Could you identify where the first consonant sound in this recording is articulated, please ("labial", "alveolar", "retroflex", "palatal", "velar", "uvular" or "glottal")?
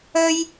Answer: palatal